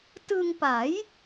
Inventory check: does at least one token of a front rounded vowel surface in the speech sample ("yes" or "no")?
no